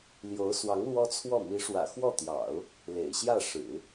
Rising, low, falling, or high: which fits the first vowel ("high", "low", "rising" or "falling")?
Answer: rising